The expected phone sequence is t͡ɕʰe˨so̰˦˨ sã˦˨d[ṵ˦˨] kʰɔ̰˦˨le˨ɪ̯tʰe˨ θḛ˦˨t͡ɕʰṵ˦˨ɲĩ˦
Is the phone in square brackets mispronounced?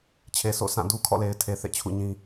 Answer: yes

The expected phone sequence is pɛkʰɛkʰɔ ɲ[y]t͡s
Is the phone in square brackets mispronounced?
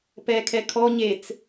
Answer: yes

